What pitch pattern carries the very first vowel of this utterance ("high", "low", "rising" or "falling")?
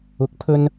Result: rising